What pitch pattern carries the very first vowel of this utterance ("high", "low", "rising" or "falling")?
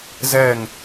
falling